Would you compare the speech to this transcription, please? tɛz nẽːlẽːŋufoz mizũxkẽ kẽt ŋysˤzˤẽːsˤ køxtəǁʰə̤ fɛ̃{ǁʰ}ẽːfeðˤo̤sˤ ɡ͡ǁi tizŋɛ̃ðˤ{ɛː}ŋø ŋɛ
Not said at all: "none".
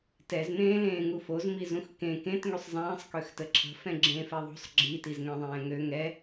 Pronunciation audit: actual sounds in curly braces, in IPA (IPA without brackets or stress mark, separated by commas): ɡ͡ǁ, ɛ̃ː